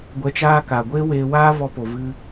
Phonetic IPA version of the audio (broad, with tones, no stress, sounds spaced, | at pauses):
ɡʷ ɛ˧ t͡ʃ aː˦ k a˨ ɡʷ eː˦ w eː˧ w aː˧ v ɔ˧ p o˨ v ɨ˧